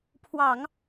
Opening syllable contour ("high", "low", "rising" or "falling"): low